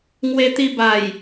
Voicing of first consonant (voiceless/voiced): voiced